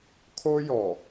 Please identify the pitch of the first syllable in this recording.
high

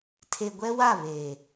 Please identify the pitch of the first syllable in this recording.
low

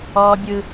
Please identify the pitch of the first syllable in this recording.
high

